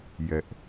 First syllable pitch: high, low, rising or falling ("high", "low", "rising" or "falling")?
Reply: low